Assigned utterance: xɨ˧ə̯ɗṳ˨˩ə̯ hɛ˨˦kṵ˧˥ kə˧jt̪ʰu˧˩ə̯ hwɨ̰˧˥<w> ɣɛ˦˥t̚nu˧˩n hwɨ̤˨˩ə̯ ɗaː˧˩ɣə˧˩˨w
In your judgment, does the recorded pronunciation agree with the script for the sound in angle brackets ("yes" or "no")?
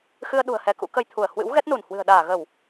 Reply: yes